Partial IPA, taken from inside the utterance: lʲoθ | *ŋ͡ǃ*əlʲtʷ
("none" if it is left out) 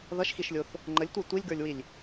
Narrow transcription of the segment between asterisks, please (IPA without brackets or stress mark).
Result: ŋ͡ǃ